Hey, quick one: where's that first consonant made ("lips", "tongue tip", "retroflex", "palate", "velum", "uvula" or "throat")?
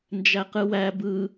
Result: tongue tip